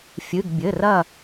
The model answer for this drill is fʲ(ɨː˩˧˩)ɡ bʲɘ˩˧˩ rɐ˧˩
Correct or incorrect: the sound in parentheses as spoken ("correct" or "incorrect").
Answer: incorrect